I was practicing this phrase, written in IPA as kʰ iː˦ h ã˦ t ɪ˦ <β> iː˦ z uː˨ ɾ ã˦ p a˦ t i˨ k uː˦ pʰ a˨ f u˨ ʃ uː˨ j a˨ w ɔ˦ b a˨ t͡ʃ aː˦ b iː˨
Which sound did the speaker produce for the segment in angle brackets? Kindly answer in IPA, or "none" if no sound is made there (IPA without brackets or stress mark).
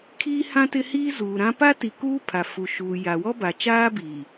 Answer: h